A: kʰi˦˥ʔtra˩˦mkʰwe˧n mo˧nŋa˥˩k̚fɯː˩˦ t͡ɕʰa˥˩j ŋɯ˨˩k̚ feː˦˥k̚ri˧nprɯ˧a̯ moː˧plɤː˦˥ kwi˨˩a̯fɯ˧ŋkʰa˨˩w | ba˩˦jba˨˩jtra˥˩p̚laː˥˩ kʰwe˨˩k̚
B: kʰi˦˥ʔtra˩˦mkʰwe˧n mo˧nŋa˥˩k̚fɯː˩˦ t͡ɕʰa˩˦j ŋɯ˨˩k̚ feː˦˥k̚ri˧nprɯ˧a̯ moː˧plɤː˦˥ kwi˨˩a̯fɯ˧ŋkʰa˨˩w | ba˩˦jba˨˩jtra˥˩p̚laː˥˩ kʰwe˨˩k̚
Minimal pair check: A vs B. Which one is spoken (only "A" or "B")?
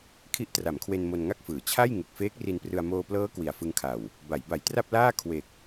A